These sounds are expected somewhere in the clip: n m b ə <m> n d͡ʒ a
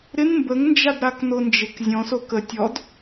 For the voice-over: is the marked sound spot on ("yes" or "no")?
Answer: no